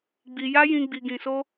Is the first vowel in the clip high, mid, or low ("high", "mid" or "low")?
high